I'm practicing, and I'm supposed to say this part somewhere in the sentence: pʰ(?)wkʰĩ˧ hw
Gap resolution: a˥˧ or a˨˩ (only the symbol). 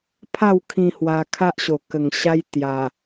a˥˧